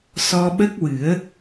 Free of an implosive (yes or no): no